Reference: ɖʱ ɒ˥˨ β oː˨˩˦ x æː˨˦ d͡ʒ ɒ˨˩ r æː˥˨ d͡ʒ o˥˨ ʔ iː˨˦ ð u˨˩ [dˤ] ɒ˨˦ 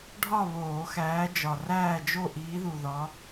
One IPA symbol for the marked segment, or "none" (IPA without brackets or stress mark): ð